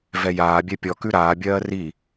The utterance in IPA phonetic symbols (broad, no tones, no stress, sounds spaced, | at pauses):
v ɛ j aː bʲ ɛ pʲ ɔ k ʉ ɾ aː bʲ ɜː r i